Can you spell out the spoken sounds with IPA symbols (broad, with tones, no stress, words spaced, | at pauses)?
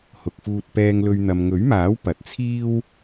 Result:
hʊ˨k̚fuː˧t̚ pɛː˧ŋlɵ˧ɥ n̪ɐ˨mŋɵ˨˥ɥmaː˨˥w pɐ˨˥t̚t͡sʰiː˥w